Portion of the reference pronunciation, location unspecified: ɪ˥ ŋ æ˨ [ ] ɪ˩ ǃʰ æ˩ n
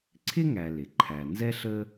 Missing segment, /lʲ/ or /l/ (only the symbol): l